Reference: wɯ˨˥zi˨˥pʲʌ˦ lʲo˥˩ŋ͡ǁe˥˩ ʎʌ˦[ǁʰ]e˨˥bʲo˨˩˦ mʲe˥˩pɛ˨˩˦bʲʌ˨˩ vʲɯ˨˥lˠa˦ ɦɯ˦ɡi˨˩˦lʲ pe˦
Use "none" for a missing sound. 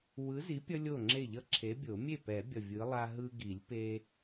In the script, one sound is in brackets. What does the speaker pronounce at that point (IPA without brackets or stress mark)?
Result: ǁʰ